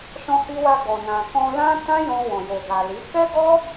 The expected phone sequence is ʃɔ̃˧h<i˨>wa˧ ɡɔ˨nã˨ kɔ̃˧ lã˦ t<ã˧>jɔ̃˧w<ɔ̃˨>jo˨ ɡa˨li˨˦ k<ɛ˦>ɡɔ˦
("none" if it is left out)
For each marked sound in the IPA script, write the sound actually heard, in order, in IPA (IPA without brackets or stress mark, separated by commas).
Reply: i˧, ã˦, ɔ̃˨, ɛ˦